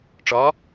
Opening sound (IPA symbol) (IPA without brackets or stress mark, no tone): ʈ͡ʂ